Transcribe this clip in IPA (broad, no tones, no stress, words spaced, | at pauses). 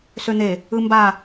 søn̪e | ɯmba